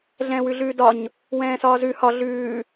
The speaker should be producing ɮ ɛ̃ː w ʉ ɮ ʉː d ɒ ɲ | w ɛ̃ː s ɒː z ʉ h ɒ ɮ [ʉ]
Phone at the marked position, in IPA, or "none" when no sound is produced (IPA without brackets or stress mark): ʉː